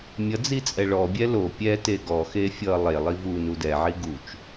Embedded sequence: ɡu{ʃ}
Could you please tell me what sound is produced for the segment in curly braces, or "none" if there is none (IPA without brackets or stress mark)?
t͡ʃ